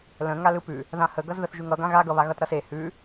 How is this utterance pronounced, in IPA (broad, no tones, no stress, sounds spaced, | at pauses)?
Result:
l ə̃ ŋ a l ɯ p ʉ | ð ã h ə ɡ ʌ z ð ə θ ʒ ʉ ŋ ʌ ɡ ã ɣ a ɡ ʌ β a ɣ ʌ t ɾ ʌ s e h ʉ